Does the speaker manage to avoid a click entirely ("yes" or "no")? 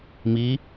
yes